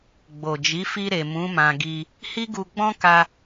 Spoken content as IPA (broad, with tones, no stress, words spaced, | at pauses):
ɡ͡bo˨d͡ʒi˨˦ fi˧ɾe˨ mũ˨˦ mã˧ɡi˧ | hi˦ɡu˧ɡ͡bɔ̃˦ka˧